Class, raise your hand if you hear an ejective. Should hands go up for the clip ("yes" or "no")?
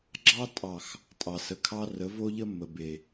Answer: yes